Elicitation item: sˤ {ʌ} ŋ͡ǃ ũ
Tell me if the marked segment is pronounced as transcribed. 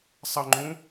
yes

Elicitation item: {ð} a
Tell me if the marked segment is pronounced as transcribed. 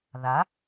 yes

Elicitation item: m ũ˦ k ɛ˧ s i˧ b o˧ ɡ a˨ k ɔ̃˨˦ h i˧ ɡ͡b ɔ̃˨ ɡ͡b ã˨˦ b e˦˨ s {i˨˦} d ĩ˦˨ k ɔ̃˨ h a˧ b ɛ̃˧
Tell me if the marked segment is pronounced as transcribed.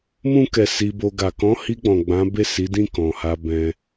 yes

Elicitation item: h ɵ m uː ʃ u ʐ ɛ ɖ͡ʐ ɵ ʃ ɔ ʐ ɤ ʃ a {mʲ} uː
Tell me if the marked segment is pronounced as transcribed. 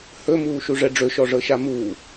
no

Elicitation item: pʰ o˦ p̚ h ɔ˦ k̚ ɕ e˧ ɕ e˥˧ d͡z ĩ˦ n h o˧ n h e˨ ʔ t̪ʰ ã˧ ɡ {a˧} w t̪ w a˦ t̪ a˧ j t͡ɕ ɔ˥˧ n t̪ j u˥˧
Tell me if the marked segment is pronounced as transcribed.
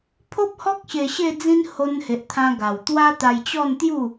no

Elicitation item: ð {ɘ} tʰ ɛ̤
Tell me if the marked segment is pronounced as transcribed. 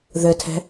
yes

